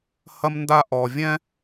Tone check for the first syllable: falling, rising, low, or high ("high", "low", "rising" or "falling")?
high